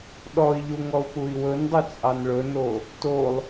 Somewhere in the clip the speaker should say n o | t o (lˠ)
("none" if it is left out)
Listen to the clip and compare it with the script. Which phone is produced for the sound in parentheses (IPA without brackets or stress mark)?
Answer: lˠ